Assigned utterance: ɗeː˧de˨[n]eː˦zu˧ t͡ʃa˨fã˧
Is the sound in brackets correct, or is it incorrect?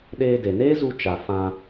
correct